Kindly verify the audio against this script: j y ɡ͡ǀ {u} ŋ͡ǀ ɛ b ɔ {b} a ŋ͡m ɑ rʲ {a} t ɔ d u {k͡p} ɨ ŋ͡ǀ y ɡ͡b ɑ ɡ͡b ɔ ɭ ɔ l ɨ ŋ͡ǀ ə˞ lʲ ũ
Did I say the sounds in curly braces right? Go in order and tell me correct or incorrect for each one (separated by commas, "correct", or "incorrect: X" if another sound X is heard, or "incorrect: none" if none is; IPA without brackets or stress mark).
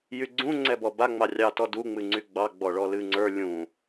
incorrect: ũ, correct, incorrect: ɑ, incorrect: ŋ͡m